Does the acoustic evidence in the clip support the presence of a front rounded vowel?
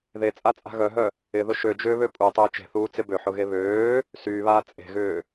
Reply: yes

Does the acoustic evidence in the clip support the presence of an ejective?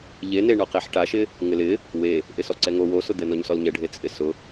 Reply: yes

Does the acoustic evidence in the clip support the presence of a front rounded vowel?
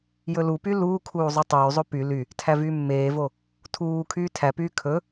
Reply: yes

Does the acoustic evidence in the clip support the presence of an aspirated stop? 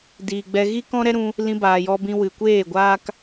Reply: no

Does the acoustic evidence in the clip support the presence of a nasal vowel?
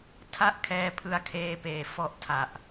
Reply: no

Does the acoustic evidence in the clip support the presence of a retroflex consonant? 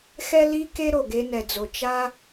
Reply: no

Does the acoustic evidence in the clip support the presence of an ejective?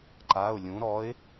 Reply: no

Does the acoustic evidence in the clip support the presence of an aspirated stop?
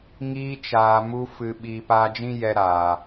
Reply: no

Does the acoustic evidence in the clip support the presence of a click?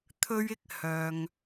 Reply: no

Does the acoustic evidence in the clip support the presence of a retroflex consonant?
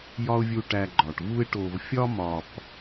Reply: yes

